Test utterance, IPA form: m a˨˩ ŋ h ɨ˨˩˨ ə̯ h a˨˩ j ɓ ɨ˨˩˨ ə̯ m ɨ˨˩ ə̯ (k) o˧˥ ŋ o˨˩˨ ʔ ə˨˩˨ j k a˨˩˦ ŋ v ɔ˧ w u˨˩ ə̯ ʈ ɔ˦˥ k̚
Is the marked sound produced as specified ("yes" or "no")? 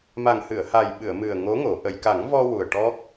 no